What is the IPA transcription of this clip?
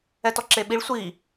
ɛtɔǁeɓiɭ sʷi

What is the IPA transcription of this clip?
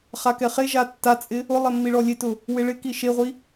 χakɛχeʒa tːat͡sʼɪ | ʊlˠɛ mːiɭɔlʲetʊ | wɪɭɪki ʃeʁʷi

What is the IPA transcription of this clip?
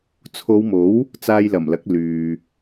t͡sʰo˨˧wmo˨˥w | t͡saː˧jlɐ˨˩mlɐ˨˥k̚ lyː˨

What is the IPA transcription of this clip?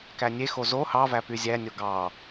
kænʲexo zo hɑ væpyzʲænʲo ɡɑ

